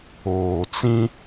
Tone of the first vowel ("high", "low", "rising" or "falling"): low